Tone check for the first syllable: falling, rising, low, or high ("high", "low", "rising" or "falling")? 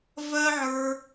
high